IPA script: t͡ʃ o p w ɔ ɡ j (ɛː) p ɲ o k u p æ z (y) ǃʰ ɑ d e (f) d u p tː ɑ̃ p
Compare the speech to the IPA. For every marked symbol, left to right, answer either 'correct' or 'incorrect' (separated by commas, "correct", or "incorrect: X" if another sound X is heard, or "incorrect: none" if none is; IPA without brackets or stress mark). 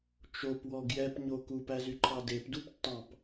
incorrect: ɛ, correct, incorrect: p